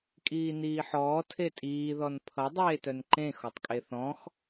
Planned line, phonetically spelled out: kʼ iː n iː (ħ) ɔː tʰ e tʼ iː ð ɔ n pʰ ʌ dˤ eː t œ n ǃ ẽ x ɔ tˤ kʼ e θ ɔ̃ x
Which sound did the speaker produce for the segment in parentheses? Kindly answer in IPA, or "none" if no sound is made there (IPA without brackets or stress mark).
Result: ħ